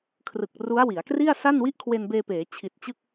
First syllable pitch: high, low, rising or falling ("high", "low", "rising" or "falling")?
low